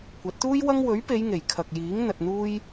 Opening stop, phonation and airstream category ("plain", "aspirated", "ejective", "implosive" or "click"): plain